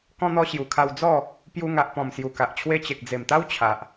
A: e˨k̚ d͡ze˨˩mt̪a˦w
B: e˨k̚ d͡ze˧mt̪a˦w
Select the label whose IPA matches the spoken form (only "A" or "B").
A